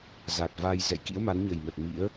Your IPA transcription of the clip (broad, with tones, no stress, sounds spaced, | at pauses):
z a˨˩ t̚ v a˧ j z ɛ̰˧˨ j k ḭ˧˥ ə̯ m a˨˦ n ɲ ə˨˩ j m ə˨˩ t̚ m ḭ˧˥ ə̯